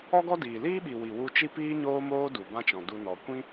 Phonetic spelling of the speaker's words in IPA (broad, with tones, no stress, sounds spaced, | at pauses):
ɔ˦ ɡ ɔ˦ d iː˨ l iː˦ ɓ i˨ w i˨ w u˧ t͡ʃ i˦ p iː˦ ɲ oː˦ m oː˦ d u˨ b ã˦ t͡ʃ ɔ̃˨ d u˧ n ɔ˨ kʷ ĩ˦